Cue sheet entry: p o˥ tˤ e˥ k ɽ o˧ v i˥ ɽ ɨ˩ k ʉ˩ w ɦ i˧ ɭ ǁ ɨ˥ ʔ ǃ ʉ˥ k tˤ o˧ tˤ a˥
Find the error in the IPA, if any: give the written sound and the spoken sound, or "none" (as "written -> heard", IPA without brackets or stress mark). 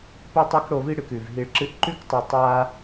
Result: w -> v